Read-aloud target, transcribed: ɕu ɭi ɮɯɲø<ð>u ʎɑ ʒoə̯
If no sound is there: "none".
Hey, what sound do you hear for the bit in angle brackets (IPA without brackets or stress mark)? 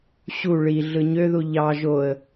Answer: ð